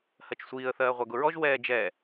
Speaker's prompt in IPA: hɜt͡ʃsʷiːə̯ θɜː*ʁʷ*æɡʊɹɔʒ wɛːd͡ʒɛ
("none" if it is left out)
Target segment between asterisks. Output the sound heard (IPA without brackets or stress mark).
ʁʷ